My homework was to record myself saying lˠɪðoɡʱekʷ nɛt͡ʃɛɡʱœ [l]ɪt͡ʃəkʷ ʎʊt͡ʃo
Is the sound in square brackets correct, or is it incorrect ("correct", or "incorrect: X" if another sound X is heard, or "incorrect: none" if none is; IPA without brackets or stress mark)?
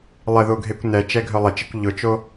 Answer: incorrect: lˠ